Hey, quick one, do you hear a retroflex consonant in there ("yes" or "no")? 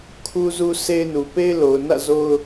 no